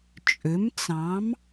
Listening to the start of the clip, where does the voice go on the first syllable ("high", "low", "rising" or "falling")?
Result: rising